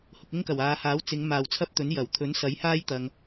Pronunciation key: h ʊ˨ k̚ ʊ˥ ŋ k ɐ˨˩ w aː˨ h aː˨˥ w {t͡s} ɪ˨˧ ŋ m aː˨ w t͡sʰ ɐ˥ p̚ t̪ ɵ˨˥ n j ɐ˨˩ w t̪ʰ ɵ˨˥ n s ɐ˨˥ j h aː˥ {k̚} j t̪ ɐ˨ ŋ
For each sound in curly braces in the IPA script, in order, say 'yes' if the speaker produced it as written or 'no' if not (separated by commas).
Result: yes, no